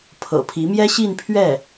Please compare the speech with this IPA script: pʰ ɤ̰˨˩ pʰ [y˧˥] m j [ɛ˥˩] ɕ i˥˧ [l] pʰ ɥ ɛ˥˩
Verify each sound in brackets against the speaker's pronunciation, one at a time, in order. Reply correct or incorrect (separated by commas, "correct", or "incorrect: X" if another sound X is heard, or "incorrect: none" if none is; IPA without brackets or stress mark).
incorrect: i˧˥, incorrect: ɛ˥, incorrect: n